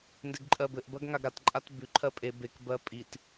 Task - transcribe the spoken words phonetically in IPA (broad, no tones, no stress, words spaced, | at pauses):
ndeɡǃʼɜbɘʔ bɜɡŋaɡɾat ǃʼatbʉ ǃʰɜpʼe bek bɜpʼit